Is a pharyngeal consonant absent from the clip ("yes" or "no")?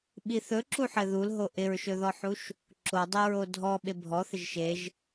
no